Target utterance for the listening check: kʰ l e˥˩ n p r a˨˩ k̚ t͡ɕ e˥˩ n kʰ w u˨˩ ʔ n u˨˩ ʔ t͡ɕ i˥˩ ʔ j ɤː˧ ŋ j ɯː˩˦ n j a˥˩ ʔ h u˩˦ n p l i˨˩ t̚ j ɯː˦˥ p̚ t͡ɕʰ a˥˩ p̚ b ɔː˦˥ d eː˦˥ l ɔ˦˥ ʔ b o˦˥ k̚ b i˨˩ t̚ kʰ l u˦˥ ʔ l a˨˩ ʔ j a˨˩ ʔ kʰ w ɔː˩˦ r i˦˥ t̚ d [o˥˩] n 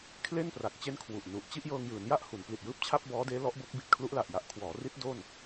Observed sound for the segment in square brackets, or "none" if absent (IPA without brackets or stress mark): o˥˩